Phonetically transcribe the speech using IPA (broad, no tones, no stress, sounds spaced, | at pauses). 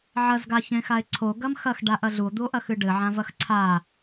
ʕ ɐ z ɡ a ç ẽ x a e̯ ǀʰ o ɡ ɐ m x ɐ x ɖ a ʔ ɐ ɮ u o̯ d̪ u o̯ ʔ ɐ x ɨ ɖ ɘ ʕ ã v ɐ x ǀʰ a